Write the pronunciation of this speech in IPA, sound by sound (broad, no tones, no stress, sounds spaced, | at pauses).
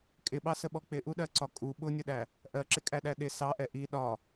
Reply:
kʼ ɪ ɓ ɑ s ə ɓ ɔ k͡p ɪ ʔ u ɗ ɜ ǀ ɒ kʼ u ɓ ʊ nʲ ʊ ɗ æ | ʔ ɜ ǁ ɪ kʼ æ ɗ æ ɗ ɪ s ɑ ʔ ɛ ʔ i ɗ ɒ